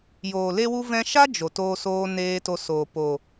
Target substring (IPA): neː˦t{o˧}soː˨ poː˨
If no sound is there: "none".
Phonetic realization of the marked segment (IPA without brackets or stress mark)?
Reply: o˧